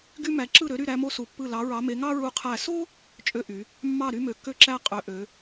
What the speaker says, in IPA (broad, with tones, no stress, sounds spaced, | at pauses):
ɡ y˥ m æ˧˥ ǁ ɯ˥˨ ɾ ø˧˥ ɾ y˥˨ ɾ æ˥ m o˥ s u˧˥ pː ɯ˥˨ l ɑ˧˥ ɹ ɑ˧˥ m e˧˥ ŋ ɑ˥ ɹ u˥˨ qʰ æ˥˨ s o˥ | t͡ʃʼ ø˥ ʔ y˧˥ | mː ɑ˥˨ ɾ y˥ m ø˧˥ kː ø˥ ǁ æ˥ qʼ ø˧˥ ʔ ø˧˥